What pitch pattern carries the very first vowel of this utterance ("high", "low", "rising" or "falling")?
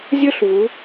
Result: high